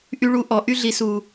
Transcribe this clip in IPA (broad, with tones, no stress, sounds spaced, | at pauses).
ʔ y˧ ɭ u˧ ʔ ɔ˨ ʔ y˧ ɮ i˨ s u˨